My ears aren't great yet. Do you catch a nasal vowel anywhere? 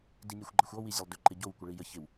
no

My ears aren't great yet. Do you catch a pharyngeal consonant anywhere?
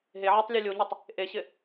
yes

